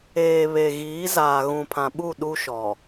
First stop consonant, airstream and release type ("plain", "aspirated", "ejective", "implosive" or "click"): aspirated